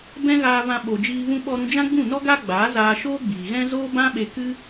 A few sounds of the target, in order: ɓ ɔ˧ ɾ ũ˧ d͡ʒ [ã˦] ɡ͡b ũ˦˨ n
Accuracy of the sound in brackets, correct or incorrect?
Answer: correct